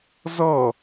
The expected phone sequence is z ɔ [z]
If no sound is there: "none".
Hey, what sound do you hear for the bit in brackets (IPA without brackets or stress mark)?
none